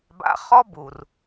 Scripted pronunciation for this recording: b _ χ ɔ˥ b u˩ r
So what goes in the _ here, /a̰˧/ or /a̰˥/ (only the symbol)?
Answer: a̰˧